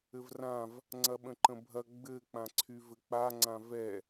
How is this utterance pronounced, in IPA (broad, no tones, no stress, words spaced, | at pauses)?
ɘvrãv | ŋ͡ǀɐɓə̃ǃə̃bʱɐ ɡ͡bɘ k͡pãǀʰyvɘk͡pa ŋ͡ǀãvɛ